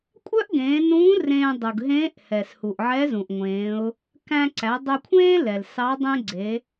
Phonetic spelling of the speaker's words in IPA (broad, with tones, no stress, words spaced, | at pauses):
kʷʼœ˥ʔɡẽː˩˧nũː˧˥ rẽː˧ dˤu˩ɡ ɦẽː˧˥ʔhɛ˩s hu˩ʔʕɛ˧˥zũ˩ʔŋʷẽː˩˧ʊ̯ | kæ̃˧ǀæ˩˧dˤœ˧kʷʰẽː˥ lɛ˩lsɑ˧˥dˤẽ˥ ɡ͡ǀe˩˧